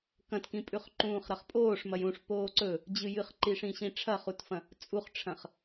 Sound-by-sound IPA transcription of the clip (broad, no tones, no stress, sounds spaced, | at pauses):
k ɐ̃ t k ĩ pʼ ʉ χ ǃ ũː χ ɾ ɐ χ pʼ oː ʂ m ɐ j ũ ʂ p oː ǀ ɵ | d͡ʑ ɨ j ɨ χ ǃ i ʂ ĩ ɕ ĩ ʈ͡ʂʰ ɐ χ u t f ɐ̃ | t͡sʼ u χ ʈ͡ʂʰ ɐ̃ χ